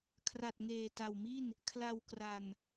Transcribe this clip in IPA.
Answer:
kʰ r a˨˩ t̚ ŋ eː˨˩ t a˨˩ w m i˥˩ n | kʰ l a˧ w k r a˧ n

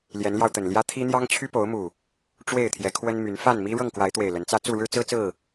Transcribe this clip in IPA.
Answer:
l j ɛ˨˦ n l j ɑ˧ ʊ̯ t̪ ə˨˩ n l j ä˦ t̪ʰ i˦ n̪ j ɑ˦ ŋ t͡ɕʰ y˦ p o˨˦ ʊ̯ m u˨˩ | ʈ͡ʂ w e˥˨ ɪ̯ t̪ʰ j ɛ˨˦ kʰ w ə˦ n m y˨˦ n f a˥˨ n m i˦ ɻ ɤ˥˨ ŋ k w a˨˦ ɪ̯ t̪ w e˨˩ ɪ̯ l ə˨˦ n t͡s ä˦ t͡s u˥˨ ɻ ɻ̩˦ t͡s ɹ̩˦ t͡s ɹ̩˥˨

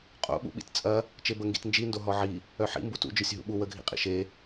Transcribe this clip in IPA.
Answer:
qʼ o̰ ɓ ṵ ɓ ḭ t t͡sʼ ɐ | t͡ʃ e b ə ŋ ɡ ḭ t n d͡ʒ i n d o ɦ ɔ ʕ i | œ ħ ḭ m b u t ṵ d͡ʒ œ sʲ ɦ ṵ ɓ u w ə ɡʱ ḭ qʼ ḭ ʃ e

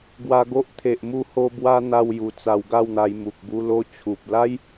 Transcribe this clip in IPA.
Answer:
ɡ w a˧ ɡ o˦ ʔ t̪ʰ e˨ ʔ m u˧ h o˧ b w a˧ n̪ a˧ w j u˨˩ t͡s a˧ w ɡ a˥˧ w n̪ a˧ j m u˨ k̚ b u˧ l o˧ t͡ɕʰ u˨ p̚ l a˦ j

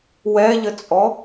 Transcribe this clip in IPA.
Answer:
w ɛ ʎ ə t͡sʼ ɔ

